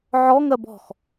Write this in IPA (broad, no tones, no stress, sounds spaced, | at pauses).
ʕ ɔ ŋ ɜ b ɔ̤ x